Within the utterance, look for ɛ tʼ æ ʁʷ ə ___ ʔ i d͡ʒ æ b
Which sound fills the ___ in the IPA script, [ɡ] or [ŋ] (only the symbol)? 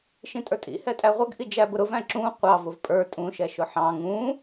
ɡ